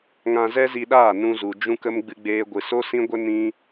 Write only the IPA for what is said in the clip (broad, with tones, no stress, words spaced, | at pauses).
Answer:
ŋã˧zɛ˦zi˧ɗaː˦˨ nũ˧zu˨d͡ʒũ˦kə˦m ɡ͡bɨ˦ɡ͡beː˦ɡʷɨ˧ so˦sĩ˦ɡʷə˦ nĩ˦